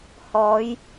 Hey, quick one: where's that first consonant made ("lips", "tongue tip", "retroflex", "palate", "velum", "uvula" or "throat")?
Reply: throat